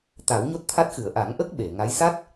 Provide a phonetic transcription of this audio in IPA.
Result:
t̪a˨˩˦wɲo˦˥t̚t̪ʰa˦˥t̚xɨ˨˩˨ə̯ ʔa˨˩˦ŋʔə˦˥k̚ ɓe˨˩˨ ŋa˧˥j sa˦˥t̚

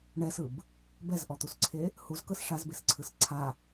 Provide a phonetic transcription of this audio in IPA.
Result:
ɳɛsɯb | bɛzʔɔt̪usǀʰe | huzkɤs ʂazbesǀʰɯs ǀʰa

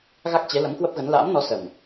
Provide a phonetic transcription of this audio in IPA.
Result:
ɣa˦˥k̚t͡ɕe˨˦ lə˨˦mkwə˦˥p̚ɣə˨˦n la̰ː˧˥mnɔ˨˦ sə˨˩m

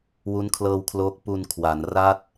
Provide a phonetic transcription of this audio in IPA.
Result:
wu˦˥nkʰlɤː˧wkʰloː˦˥k̚ pu˧nkʰwa˩˦n ra˥˩t̚

